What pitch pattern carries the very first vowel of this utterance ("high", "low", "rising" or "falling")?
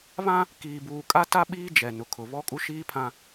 high